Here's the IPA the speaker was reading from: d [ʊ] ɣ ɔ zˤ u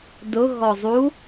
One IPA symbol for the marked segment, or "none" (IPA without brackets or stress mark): ʊ